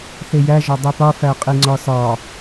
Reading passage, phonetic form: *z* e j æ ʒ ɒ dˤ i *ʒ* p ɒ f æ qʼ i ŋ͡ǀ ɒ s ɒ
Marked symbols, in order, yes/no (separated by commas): no, no